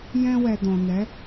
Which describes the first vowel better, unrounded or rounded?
unrounded